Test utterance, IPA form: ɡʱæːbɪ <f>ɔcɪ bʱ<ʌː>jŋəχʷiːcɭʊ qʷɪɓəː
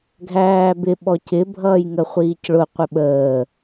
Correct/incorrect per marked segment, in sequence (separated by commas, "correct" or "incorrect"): incorrect, correct